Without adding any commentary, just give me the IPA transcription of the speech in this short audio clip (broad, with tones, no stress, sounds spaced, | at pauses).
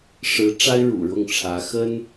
ʂ ɻ̩˧˥ ʈ͡ʂ a˥ ɪ̯ ɻ ṵ˨˩ ɻ ʊ˥˩ ŋ ʈ͡ʂʰ ä˧˥ x ə˥ n